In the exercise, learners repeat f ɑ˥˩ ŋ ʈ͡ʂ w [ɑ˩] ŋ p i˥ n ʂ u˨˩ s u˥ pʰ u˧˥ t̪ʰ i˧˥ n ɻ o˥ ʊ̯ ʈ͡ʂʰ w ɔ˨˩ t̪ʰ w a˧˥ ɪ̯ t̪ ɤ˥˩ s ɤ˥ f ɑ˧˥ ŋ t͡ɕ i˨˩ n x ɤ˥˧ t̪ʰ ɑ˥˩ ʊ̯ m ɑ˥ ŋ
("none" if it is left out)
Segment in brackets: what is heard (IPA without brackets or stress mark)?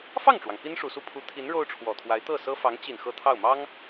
ɑ˩